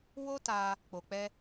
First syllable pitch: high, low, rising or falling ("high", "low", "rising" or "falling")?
high